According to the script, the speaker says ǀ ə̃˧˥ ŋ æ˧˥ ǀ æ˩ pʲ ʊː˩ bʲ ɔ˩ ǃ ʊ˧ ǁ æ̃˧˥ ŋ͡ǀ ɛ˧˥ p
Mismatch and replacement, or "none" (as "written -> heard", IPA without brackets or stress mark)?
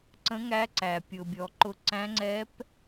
ǁ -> ǀ